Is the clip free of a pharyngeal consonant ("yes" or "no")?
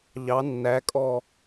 yes